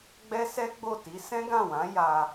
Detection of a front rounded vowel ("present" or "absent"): absent